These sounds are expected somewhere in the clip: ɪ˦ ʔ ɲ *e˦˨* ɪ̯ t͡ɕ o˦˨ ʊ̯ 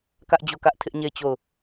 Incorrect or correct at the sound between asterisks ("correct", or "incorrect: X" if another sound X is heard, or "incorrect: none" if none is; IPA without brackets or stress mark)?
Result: correct